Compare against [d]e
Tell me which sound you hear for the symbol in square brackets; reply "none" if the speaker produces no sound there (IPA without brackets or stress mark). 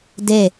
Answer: d